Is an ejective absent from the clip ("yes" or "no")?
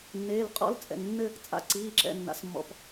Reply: no